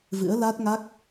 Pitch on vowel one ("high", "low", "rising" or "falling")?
rising